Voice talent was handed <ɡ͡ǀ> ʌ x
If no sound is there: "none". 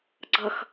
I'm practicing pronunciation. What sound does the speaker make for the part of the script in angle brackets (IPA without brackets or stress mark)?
ɡ͡ǀ